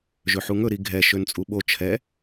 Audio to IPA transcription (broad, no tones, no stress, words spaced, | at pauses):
ʒøħuŋɵ ɾiɡʱɛ ʃønt͡sʼuɓo t͡ʃʰɛ